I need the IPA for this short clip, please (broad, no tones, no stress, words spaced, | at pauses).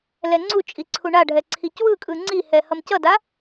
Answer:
lɛŋ͡ǀut͡ʃʼi ǀʰuɳaɖʱɛ ǀʰicwɯkʼɯ ŋ͡ǀihɛ hʌmcʌda